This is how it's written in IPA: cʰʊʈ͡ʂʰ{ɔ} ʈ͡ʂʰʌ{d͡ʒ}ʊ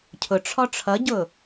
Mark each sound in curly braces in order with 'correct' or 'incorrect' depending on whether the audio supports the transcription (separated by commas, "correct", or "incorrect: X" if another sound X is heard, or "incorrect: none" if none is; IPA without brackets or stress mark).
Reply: correct, incorrect: ɟ